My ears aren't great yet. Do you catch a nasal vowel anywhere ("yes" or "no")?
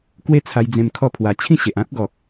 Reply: yes